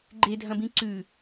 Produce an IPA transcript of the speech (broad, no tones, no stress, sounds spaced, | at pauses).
ɡ͡ǃ e dʱ ɐ̃ b ĩ ǀ ʉ